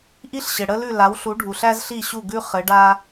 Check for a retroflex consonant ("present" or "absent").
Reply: present